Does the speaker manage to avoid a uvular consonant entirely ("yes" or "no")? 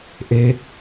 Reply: yes